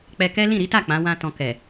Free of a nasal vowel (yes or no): no